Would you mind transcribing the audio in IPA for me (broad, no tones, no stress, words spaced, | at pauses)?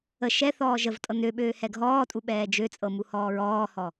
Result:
ə ʃɛ θɔːʒəvtʼɤ nøɓøːhɛ ɡʱɔːtʼu ɓɛːd͡ʒøt͡sʼɤmu hɔːɹɔːhɔ